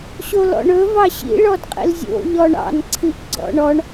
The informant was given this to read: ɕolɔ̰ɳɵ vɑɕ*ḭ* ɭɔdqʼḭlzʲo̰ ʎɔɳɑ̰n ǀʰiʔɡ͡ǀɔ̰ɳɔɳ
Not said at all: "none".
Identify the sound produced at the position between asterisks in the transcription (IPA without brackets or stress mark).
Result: ḭ